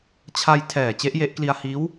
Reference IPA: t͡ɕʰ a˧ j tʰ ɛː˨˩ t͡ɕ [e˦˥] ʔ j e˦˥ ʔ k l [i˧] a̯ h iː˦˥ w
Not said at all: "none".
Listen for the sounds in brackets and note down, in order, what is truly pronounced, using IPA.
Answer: e˦˥, i˧

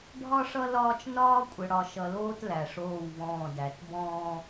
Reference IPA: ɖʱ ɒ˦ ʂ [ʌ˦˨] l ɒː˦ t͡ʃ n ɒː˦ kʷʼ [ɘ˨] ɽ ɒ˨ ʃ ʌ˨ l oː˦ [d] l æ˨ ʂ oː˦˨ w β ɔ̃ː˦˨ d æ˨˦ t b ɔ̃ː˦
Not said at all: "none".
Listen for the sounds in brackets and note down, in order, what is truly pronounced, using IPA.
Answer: ʌ˦, ɘ˨, t

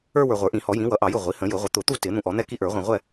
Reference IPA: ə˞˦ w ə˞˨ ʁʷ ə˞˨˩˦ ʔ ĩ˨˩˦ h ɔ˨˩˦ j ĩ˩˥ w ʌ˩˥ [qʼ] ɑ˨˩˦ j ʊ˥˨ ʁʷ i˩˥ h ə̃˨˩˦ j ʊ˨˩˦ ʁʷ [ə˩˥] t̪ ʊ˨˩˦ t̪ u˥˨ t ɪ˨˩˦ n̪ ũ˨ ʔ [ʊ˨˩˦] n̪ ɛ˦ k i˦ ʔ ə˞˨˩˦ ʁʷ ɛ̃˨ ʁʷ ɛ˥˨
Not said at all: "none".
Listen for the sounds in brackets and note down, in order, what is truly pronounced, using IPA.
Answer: ʔ, ə˩˥, ɔ˨˩˦

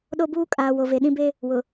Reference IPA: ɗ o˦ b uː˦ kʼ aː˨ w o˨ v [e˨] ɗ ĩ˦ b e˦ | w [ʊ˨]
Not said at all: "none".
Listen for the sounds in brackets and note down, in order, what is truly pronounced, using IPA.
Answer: e˨, ʊ˨

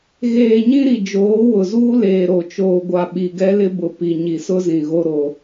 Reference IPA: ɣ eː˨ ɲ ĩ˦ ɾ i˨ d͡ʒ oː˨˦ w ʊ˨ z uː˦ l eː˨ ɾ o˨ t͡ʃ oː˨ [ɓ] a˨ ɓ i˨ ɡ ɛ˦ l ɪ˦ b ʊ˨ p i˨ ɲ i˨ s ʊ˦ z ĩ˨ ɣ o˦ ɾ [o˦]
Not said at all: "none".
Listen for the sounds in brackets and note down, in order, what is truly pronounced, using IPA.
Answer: ɡʷ, o˦

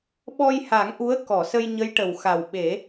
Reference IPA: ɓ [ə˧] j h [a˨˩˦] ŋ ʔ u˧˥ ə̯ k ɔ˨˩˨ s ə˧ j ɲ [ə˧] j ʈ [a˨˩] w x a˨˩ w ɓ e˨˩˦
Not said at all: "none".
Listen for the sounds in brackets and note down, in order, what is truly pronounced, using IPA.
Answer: ɔ˧, a˨˩˦, ə˧˥, ə˨˩

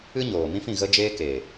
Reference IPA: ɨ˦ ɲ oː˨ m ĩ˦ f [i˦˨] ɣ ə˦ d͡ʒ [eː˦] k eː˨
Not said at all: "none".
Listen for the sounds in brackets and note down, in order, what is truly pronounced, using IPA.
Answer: ĩ˦˨, eː˦

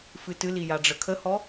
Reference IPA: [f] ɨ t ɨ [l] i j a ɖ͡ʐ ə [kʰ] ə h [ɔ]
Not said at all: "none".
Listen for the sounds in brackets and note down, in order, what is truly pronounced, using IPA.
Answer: f, l, kʰ, ɔ

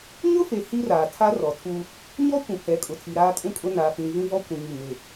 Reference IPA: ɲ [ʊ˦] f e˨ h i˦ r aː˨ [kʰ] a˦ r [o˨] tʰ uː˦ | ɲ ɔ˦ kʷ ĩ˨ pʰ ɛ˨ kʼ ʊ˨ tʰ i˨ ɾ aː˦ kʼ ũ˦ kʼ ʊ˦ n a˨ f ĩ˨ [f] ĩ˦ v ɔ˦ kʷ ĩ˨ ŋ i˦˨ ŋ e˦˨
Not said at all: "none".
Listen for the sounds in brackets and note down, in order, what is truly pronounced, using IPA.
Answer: ʊ˦, tʰ, ɔ˨, v

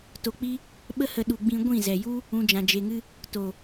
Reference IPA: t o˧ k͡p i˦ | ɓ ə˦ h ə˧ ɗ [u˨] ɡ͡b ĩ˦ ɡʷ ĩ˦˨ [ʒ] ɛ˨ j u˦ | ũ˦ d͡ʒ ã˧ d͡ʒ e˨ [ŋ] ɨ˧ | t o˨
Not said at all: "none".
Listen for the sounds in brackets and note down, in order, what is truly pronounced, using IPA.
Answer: u˧, z, ŋ

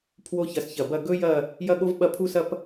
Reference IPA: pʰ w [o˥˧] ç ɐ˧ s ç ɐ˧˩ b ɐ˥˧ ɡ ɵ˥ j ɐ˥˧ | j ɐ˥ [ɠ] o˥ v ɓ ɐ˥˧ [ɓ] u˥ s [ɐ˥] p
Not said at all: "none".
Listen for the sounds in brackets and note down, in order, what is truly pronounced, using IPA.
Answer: o˥, ɠ, pʰ, ɐ˥

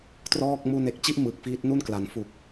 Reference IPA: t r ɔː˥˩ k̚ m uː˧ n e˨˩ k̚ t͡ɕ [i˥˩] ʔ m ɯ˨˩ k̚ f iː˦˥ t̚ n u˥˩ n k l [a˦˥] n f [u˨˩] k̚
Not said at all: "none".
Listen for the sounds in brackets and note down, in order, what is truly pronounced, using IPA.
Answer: i˥˩, a˩˦, u˨˩

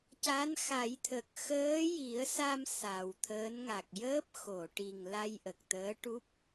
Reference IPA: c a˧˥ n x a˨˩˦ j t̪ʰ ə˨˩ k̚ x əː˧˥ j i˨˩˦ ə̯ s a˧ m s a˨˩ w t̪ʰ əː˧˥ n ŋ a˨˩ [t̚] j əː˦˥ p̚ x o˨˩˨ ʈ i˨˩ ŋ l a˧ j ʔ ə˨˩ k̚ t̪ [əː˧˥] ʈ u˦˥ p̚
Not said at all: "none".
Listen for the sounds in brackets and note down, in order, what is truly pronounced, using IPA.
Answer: k̚, əː˧˥

